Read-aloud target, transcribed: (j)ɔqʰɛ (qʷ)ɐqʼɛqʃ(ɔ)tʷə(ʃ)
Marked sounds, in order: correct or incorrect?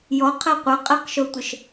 correct, correct, incorrect: o, correct

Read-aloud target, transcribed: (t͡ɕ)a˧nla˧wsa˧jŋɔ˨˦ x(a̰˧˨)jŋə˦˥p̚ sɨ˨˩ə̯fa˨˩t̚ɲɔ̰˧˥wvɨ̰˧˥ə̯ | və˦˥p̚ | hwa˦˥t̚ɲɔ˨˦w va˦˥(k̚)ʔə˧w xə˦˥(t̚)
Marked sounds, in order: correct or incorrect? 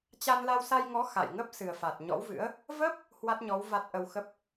correct, correct, incorrect: t̚, incorrect: p̚

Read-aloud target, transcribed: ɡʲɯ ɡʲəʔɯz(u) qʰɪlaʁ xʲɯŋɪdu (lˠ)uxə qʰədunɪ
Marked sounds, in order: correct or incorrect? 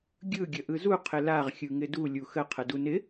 correct, incorrect: lʲ

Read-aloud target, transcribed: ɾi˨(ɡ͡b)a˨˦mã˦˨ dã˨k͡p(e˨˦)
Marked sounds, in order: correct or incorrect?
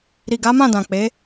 incorrect: ɡ, correct

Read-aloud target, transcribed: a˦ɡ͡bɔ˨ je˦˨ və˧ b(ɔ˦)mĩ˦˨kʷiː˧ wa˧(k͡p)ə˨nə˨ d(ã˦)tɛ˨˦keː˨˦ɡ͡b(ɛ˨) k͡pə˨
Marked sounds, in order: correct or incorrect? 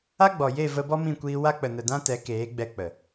correct, correct, correct, incorrect: ɛ˧

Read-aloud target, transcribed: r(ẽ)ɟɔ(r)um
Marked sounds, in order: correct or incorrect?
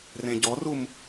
correct, correct

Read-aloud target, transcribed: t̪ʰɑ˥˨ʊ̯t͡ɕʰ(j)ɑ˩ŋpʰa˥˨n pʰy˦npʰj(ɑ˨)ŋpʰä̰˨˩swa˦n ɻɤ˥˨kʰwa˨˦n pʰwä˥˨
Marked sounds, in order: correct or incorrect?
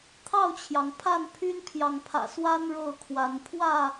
correct, correct

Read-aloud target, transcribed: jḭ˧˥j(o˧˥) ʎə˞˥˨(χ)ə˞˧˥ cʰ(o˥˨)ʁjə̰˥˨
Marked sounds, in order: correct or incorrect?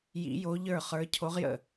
correct, correct, incorrect: o˧˥

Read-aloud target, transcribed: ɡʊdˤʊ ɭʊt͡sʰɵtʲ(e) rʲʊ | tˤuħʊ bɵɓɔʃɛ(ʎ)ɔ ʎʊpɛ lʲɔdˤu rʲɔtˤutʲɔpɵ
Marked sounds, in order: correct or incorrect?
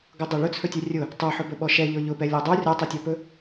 incorrect: ɛ, correct

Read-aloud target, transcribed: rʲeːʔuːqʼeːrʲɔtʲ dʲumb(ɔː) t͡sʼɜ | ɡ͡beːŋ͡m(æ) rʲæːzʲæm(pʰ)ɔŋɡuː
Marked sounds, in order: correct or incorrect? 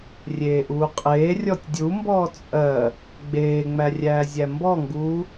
correct, correct, incorrect: b

